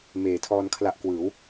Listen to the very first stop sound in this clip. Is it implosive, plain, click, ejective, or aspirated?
aspirated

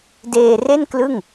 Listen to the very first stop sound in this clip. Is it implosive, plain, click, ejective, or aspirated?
plain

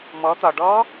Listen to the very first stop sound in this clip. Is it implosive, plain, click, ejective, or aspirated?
plain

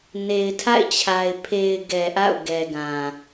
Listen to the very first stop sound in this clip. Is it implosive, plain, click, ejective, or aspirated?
aspirated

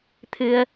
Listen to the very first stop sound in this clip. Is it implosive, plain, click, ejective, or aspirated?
aspirated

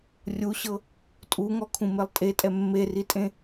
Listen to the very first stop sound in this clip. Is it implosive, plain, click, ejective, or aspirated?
ejective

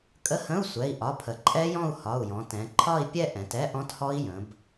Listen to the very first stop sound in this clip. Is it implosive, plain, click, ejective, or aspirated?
ejective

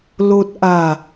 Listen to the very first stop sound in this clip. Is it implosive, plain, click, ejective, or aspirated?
plain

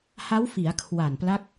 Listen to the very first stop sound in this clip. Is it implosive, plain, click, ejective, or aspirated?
aspirated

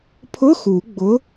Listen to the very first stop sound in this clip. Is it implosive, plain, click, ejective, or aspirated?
aspirated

